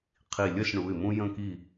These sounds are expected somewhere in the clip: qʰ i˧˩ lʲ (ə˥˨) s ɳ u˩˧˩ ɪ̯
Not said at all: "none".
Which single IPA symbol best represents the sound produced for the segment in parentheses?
ə˥˨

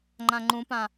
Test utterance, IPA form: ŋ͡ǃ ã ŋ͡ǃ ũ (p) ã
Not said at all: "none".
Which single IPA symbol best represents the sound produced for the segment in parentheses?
p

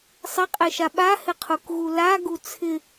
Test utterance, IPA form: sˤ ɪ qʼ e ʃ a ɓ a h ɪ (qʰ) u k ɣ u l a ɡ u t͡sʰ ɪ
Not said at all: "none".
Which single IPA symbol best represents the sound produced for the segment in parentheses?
qʰ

